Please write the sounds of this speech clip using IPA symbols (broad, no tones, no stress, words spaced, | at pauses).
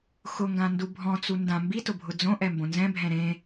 xʊŋɡãndu bʱɔ̃t͡su ndã mbitʊbʱʊ d͡zõʔɛmbõ nzɛ̃bʱɛ̃ ɾẽ